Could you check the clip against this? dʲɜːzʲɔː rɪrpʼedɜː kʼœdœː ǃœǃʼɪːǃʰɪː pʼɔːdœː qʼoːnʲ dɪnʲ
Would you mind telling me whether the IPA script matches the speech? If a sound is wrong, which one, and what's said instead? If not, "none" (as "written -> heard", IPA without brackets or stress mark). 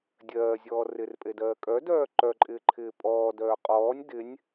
oː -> ɔː